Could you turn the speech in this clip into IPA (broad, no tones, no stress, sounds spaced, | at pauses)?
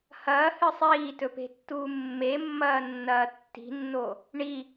h ɐː h ɨ sˤ iː t ɵ p e̤ tː uː mː e mː ɐː nː ɐː tː i̤ nː o | ɳ i